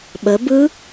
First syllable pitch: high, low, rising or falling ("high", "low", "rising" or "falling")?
rising